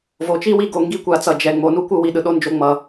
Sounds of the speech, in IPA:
v o˩ t͡ʃ i˥ w i˧ ɡ o˩ ŋ ɡ i˥ kʷ a˩ t͡s ʌ˩ d͡ʒ ɛ˩ ŋ͡m o˩ n u˥ kʷ ɯ˧ w i˩ ɗ ɯ˩ ɗ o˧ n d͡ʒ o˧ ŋ͡m ʌ˩

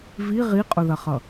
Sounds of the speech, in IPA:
v i ʁ i qʼ ʊ ð ɐ χ ʌ

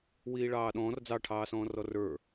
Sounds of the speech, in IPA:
w iː ɭ ɑː ɗ ɔ̃ː r d͡z ɑ ʈʰ ɑː s ɔ̃ː r ɔ r ə˞

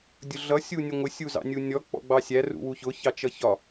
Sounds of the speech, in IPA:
dʲ ʊ ɮ ʌ sʲ u nʲ ʊ ŋʷ ɪ sʲ u z ɑ̰ nʲ u nʲ ɔ k͡p ɔ̰ ɡ͡b ɑ sʲ æ r ṵ w u ç ʊ ç ɑ t͡ʃ ʌ ç ɒ

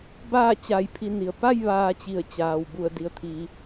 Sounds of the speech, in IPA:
b aː˥˨ t͡ɕ a˧˩ j pʰ i˧ n i˩ ə̯ p a˥˨ j ʋ aː˧ t͡ɕ i˧˩ ə̯ t͡ɕ aː˩ w b u˧˩ ə̯ d i˩ ə̯ t̪ʰ iː˩

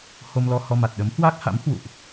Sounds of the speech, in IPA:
h o˧ m l ɔ˧ h ɔ˧ m a˨˩ t̚ ɗ ə˨˦ m h w a˦˥ k̚ h a̰˧˥ m h w ṵ˧˨ ʔ

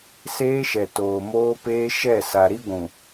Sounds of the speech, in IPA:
s eː˦ ʃ ɛ˨ t oː˨ m oː˦ p eː˦ ʃ ɛ˦˨ s a˨ ɾ i˦ ɡʷ ũ˨

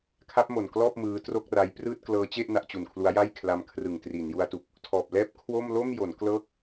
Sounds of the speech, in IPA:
kʰ a˦˥ p̚ m o˨˩ n k l ɔː˥˩ p̚ m ɯː˦˥ t r o˥˩ k̚ r a˦˥ j p r ɯː˥˩ t̚ k l ɤː˦˥ t͡ɕ e˥˩ ʔ n a˦˥ ʔ t͡ɕ u˨˩ n kʰ l u˦˥ a̯ j a˥˩ j kʰ l a˧ m kʰ r ɯ˨˩ ŋ t r iː˩˦ n j u˦˥ a̯ t u˨˩ k̚ | tʰ ɔː˨˩ p̚ l ɛː˥˩ p̚ kʰ w o˥˩ m l o˥˩ m j o˩˦ n k l ɤː˥˩ k̚

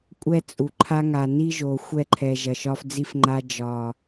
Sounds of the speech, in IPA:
kʷʼ ɛ˦ t͡sʼ u˨ ǃʰ a˦ ŋ a˨ n i˦ ʒ o˨ xʷ ɛ˦˨ ǃʰ ɛ˨ ʒ ɐ˨ ʃ ɒ˦ f d͡z i˦ f ŋ͡ǃ a˦ d͡ʒ ɒ˨

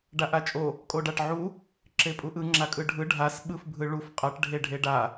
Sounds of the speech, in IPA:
ɖ a ʔ a t͡ʃʼ o | kʼ o ɖ a ʈ ʕ u | ǁ e pʼ u ʔ ɯ ŋ͡ǁ a kʼ ɯ ɖʱ ɯ ɖʱ a s ɓ ɯ f bʱ ɯ ɭ u f qʼ ʌ ʈ ɖʱ e ɖʱ e ɖ a

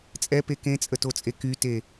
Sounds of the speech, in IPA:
t͡sʼ ɛ p e k ẽ t͡sʼ ə t o t͡sʼ e k y t e

